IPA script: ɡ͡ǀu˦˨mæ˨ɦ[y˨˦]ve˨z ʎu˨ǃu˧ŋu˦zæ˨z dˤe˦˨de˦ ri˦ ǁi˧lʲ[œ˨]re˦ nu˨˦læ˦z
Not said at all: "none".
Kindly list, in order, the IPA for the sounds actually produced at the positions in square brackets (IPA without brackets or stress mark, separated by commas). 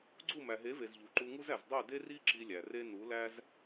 e˨˦, æ˨